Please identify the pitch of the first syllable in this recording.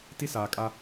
high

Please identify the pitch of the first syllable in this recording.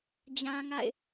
high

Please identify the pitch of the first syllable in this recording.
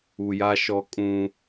low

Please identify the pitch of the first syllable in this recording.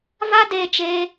high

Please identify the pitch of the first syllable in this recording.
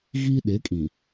high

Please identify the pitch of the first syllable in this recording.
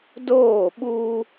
falling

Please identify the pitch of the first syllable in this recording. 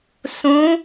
rising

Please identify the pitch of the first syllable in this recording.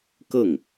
falling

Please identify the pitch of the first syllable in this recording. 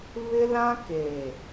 high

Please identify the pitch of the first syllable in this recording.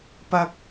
high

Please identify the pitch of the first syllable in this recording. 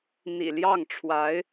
low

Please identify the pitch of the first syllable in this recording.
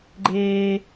high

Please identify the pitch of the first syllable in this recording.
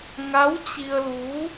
rising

